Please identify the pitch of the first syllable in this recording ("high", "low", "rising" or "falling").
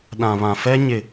low